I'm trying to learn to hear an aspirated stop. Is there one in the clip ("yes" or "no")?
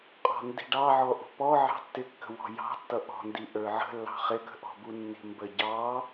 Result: no